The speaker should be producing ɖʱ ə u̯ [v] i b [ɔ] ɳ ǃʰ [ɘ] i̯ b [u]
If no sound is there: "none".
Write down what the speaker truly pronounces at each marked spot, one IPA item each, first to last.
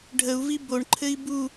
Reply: v, o, ɘ, u

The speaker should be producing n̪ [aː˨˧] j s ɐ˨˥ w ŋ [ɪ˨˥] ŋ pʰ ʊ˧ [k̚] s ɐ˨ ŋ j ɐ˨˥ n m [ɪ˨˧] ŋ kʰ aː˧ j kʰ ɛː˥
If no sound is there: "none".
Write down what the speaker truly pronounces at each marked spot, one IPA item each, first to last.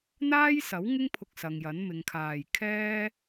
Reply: aː˥, ɪ˥, k̚, ɪ˨˧

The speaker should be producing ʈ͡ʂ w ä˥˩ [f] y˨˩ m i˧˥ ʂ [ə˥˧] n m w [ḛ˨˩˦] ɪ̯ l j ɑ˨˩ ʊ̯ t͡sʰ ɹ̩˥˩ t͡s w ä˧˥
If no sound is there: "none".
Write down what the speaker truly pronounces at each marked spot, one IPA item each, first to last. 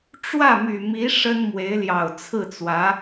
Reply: m, ə˥, e˧˥

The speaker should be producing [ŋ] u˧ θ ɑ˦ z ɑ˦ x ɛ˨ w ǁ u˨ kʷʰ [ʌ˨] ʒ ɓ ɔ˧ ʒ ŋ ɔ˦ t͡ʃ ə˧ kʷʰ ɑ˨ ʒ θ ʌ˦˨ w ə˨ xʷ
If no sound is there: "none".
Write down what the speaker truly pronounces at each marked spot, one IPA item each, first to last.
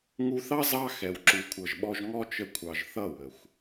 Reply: ŋ, ʌ˨

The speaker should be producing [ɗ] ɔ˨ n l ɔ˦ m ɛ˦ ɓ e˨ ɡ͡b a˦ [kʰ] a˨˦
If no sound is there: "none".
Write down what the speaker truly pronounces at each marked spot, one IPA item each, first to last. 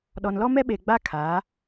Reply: ɗ, kʰ

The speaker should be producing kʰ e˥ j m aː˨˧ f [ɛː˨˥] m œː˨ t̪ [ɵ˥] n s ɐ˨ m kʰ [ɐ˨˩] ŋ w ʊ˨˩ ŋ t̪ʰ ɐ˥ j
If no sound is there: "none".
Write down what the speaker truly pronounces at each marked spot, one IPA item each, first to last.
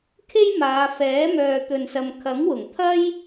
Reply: ɛː˨˥, ɵ˨, ɐ˨˥

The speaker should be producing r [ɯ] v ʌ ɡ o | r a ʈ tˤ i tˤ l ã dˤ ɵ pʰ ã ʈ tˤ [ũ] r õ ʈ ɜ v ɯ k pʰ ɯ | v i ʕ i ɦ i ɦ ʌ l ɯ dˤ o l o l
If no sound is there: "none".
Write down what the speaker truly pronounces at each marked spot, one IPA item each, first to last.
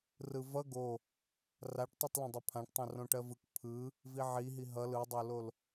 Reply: ɯ, õ

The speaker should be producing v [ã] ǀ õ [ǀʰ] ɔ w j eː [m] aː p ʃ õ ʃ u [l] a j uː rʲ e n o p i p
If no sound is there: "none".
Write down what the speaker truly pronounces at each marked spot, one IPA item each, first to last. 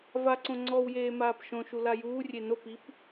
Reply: a, ŋ͡ǀ, m, l

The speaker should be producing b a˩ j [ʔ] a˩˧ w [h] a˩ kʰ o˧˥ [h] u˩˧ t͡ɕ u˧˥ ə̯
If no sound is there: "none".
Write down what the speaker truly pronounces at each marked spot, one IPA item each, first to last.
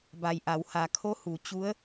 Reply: ʔ, h, h

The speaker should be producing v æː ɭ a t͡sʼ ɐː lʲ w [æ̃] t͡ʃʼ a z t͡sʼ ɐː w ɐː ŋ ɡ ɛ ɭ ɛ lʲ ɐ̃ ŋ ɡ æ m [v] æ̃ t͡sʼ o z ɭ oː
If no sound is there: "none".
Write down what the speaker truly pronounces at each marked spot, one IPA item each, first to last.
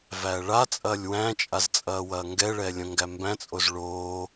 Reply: æ̃, b

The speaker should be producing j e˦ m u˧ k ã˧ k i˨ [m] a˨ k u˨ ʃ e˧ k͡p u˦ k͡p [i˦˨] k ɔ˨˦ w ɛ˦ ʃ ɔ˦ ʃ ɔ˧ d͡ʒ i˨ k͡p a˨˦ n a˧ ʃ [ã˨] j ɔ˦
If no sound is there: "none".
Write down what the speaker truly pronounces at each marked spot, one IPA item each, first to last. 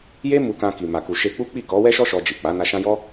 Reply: m, i˦˨, ã˦

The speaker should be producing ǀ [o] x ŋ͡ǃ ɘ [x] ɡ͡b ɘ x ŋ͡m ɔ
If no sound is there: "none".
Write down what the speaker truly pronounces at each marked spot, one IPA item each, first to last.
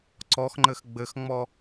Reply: ɔ, x

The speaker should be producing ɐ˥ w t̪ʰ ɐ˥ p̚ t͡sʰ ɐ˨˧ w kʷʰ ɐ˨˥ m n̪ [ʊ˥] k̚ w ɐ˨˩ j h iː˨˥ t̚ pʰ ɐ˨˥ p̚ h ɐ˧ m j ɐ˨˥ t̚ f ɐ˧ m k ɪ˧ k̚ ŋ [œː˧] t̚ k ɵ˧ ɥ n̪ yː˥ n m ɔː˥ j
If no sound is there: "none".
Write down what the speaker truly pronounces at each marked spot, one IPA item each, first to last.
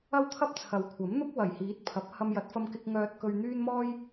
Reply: ʊ˥, œː˧

